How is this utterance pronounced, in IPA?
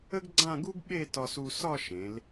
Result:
ə˥ɡɡ͡ǀã˥˧ɡu˥ɡ ɓe˥˧tɒ˧su˧ sɒ˥˧ʃẽ˩˧l

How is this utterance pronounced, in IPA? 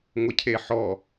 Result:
ŋʷəcʰeħɔ

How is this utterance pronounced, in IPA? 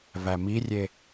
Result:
væmirʲe

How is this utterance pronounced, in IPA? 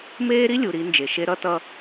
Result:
meː˦ɾi˦lʲu˨ ɾi˨˦nd͡ʒe˨ʃe˦ ɾʌ˦tʌ˦

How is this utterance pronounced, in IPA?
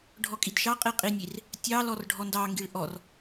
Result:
ɖʱɔkʼidʃɑqʼi qʼinʲir | tʲɑlɔr ɖʱɔndɑŋɡiɭ ʔɔr

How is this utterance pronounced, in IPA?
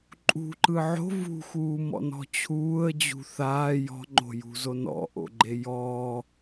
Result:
ǃʼṳǃɯ ʕo̤ vṳxuːmɔ̰nɔ̤ t͡ɕʰuːə̯d͡ʑṳ θaː jɔ̤ŋ͡ǃo̤jṳzo nɔ̰ʔo̰ɡ͡ǃe jɔ

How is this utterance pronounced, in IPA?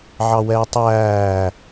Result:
ʕɑwɛːtˤæː

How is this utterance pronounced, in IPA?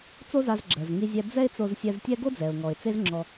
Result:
t͡so˥za˧zɡ͡ǁɜ˩z ŋi˧zʲɛ˧ d͡zɛ˥ɪ̯t͡so˧z sʲɛ˧ztʲɛ˥ ɡo˥d͡zɛ˩ʊ̯ŋɔ˩ɪ̯ t͡se˥zŋ͡ǁɔ˧

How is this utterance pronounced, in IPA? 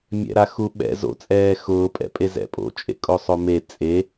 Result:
mʲɛ̰ɾaxuɓɛ̰ zo̰t͡sʼɛː xʊːpʼɛ̰pʼe zɛ̰pʼo̰ t͡ʃʼḛkʼosˤome t͡sʼe

